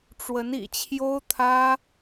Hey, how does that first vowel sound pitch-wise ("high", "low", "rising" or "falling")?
rising